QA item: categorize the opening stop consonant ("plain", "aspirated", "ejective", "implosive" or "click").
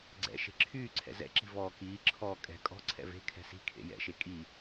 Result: click